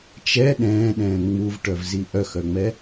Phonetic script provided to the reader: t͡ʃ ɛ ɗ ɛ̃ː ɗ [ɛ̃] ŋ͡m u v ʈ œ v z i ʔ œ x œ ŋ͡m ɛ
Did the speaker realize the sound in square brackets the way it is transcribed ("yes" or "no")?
no